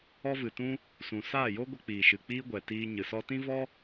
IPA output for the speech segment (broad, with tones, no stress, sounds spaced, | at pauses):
ɔ˦ v ɨ˨ t ũ˦ | s ũ˨ s aː˦˨ j o˦ ɡʷ ə˧ k͡p iː˨ ʃ ɨ˨ k͡p iː˦ ɡʷ ɛ˨ t iː˧ ɲ ɨ˨ s ɔ˦ t ĩ˦ v ɔ˦